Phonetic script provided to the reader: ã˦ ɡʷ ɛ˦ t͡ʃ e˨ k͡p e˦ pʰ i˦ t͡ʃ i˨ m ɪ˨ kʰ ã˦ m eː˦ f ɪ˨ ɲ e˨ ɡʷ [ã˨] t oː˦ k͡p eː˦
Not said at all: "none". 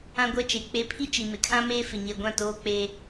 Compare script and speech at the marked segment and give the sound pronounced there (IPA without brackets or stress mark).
ã˦˨